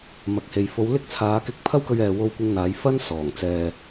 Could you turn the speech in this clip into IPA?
m ɐ˨ k̚ h e˨ j f o˨˧ w l ɪ˥ k̚ t͡sʰ aː˨˧ k ɪ˥ k̚ pʰ ɐ˥ w k ɵ˧ ɥ ɛː˨ w o˧ w kʷ ɪ˧ ŋ n̪ aː˨˧ j f ɐ˥ n s ɔː˨˩ ŋ t͡s ɛː˧

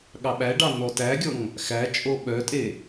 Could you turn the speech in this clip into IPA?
ɠ ɑ ɓ æ ɖ ɑ n ɔ t æ ɡʲ ɔ ŋ | x æ t͡ʃʼ o ɓ œ tʼ e

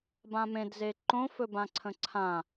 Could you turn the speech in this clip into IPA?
b ã m ẽ d z e ǃ õ f ɵ b ã ǀʰ ə̃ ǀʰ ã

